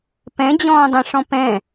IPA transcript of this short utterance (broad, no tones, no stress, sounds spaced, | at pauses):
p ɛ̃ d͡ʑ ɔ̃ː dˤ ɛ̃ ʂ ɔ̃ p ɛ̃